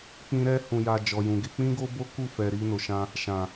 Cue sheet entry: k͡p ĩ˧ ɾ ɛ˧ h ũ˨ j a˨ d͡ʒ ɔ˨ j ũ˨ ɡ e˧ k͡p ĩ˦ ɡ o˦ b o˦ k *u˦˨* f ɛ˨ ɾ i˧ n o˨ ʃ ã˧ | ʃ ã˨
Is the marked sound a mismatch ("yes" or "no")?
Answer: no